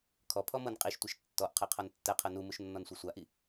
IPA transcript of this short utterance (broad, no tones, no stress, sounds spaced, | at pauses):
kʰ ɔ pʰ ɔ m ɤ n qʼ i ʃ tʷ i ʃ tː ɔ ʔ qʰ ɛ qʰ ɔ n tː ɛ qʰ ɤ n u m u ʃ nː ɔ n sʷ ɤ sʷ a ʔ i